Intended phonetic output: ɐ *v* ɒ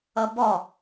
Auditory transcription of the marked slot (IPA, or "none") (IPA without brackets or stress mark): b